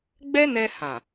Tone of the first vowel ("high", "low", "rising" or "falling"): high